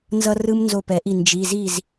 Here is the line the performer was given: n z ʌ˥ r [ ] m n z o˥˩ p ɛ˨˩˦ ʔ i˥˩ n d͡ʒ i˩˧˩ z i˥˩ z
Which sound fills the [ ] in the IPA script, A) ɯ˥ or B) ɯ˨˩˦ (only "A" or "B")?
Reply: A